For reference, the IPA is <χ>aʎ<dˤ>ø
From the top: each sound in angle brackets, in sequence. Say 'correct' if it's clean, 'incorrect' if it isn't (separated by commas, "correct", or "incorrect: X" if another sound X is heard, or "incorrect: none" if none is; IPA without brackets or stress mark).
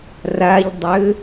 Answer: incorrect: r, correct